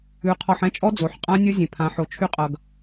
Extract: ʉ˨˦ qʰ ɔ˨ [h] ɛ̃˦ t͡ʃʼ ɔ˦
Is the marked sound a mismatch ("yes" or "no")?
yes